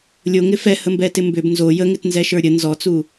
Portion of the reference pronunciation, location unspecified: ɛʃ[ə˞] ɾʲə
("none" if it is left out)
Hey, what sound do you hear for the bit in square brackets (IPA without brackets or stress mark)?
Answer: ə˞